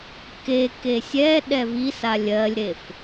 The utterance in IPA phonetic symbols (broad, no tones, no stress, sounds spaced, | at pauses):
k e k e sʲ ɛ ɗ ɛ v i s a lʲ ɜ lʲ ɾ e f